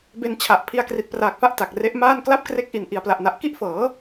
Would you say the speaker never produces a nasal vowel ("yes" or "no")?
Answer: yes